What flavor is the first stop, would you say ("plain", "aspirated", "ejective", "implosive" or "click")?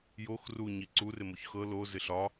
click